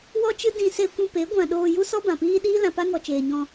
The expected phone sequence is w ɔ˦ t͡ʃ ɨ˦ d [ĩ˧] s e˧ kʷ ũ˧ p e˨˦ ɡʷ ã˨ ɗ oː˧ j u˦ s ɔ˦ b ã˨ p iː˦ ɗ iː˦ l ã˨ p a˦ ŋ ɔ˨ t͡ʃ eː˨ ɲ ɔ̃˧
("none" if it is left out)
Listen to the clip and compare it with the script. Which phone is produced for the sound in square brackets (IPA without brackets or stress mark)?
ĩ˧